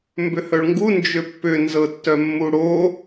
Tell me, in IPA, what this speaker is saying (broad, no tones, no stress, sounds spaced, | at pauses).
m b ʏ h œ ɭ ŋ ɡ u n d͡ʒ ʏ pː ʏ n z ɤ tː œ mː u ɽ o